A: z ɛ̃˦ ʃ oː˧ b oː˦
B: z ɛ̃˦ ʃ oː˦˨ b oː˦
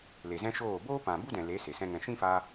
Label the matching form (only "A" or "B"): B